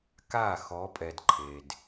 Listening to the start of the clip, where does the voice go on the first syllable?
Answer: falling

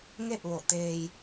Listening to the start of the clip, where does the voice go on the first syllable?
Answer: falling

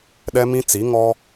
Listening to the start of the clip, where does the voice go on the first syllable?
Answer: high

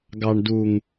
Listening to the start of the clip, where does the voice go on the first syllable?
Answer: low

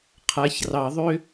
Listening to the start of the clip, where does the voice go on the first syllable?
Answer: rising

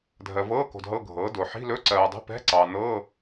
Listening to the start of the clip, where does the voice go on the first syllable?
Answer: low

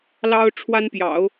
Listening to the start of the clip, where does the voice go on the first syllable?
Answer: high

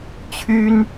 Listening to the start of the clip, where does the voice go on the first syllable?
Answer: high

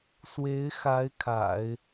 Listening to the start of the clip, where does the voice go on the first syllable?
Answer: rising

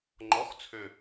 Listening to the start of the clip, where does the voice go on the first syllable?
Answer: rising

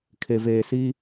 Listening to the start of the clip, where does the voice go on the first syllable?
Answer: low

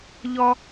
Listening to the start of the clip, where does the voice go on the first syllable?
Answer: high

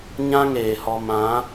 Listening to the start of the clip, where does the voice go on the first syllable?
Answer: high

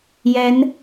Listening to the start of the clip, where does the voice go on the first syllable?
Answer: rising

